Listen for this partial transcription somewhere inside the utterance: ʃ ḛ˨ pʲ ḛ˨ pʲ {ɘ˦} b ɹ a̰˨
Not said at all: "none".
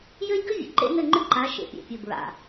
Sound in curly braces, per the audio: ɘ˨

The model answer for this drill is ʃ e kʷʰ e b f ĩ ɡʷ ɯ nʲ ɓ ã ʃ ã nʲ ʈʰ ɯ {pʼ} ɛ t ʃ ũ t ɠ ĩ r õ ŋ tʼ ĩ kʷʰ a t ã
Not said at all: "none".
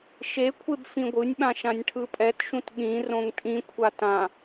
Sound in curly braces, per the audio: pʼ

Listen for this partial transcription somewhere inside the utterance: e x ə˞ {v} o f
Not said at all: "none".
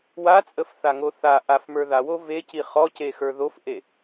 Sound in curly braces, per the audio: ð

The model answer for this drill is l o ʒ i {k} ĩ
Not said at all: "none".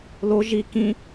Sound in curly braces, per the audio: k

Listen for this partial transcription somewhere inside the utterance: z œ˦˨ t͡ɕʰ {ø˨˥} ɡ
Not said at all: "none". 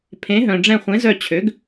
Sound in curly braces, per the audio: ø˨˥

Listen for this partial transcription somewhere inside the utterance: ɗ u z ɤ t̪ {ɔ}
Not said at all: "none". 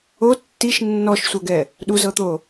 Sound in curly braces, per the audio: o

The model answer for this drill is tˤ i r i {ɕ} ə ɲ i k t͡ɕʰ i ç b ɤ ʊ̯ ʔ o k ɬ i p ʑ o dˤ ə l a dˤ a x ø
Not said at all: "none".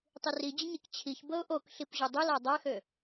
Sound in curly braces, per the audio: d͡ʑ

